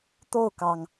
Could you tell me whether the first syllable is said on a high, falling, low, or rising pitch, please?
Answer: falling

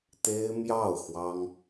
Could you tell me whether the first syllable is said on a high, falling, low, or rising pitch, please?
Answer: high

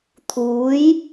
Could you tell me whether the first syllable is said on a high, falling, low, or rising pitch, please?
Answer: rising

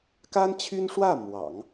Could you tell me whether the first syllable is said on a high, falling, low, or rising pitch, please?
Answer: high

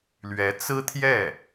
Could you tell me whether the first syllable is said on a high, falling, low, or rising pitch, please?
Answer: rising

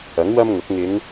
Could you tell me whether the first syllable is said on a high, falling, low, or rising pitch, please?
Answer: rising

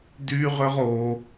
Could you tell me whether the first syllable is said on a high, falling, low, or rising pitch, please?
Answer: high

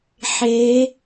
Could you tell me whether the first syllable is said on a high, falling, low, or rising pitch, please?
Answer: rising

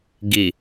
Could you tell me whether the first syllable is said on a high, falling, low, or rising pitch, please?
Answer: low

